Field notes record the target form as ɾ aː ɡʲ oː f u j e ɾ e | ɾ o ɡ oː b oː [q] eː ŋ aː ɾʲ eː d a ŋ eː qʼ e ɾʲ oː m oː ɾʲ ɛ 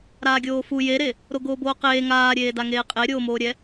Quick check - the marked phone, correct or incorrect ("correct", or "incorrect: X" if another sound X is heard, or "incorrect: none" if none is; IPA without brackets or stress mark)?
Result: correct